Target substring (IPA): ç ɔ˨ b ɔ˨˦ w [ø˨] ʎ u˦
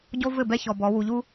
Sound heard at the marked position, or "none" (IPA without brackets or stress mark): u˨